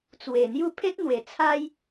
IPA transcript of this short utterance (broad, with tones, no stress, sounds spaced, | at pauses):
t͡s w e˨˩ n̪ j u˥˧ pʰ e˦ t̚ n̪ w e˨˩ t͡sʰ a˦ j